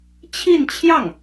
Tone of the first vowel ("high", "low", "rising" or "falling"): falling